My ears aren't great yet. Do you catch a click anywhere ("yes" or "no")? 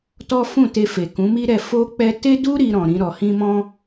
no